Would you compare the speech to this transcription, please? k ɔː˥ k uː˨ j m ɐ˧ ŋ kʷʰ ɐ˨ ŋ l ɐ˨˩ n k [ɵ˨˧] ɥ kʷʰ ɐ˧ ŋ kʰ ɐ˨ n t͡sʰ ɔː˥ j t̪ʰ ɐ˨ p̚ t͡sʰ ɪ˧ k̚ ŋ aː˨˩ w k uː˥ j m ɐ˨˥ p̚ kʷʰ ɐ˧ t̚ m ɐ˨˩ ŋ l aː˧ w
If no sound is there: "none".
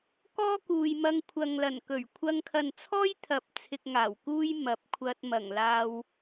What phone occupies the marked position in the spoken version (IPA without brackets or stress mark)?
ɵ˨˩